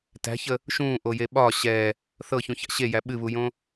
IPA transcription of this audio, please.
t æ̤ ç ə | ʃ ũː ʔ o j e ɓ ɒ ɕ ɛ | θ ɤ ç ũ ç a̰ ɕ e j æ ɓ ɨ β u j õ

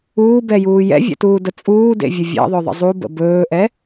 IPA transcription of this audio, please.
uː b ɛ j uː j ɛ̰ vʲ ɛ̰ t uː d ə t͡sʼ uː d ḛ vʲ ə vʲ ɛ̰ ðˤ ɵ ðˤ ə̰ zˤ u b ə̰ b ɵː ʔ ɛ

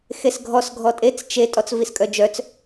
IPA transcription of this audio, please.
x e s ɡʱ ɔ s ɡʱ ɔ tʼ e t͡s t͡ʃ e tʼ ɔ t͡s v i s kʼ œ d͡ʒ œ t͡s

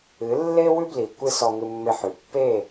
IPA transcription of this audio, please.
ɨ˨˦ lː e˦ w ʉ˦ b l i˨ kʷ ɨ˦ s ɔ˧ ŋ ɨ˧ mː e˧ ħ ʉ˨ pː e˦˨

